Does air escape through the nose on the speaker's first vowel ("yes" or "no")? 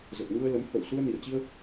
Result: no